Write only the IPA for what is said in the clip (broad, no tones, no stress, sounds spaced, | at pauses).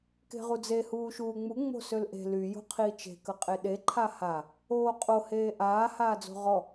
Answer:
k e̤ ʁ u d͡z e h uː ʃ uː ŋ͡m u ŋ͡m o̤ s ø l ʔ e̤ l y j o̤ qʰ iː t͡ʃ e̤ k ə qʼ e ɗ e ǃʰ a h a | oː qʼ o h eː ʔ aː h aː d͡z o̤ ʁ ɔ